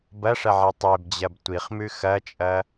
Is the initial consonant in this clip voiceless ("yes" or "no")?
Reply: no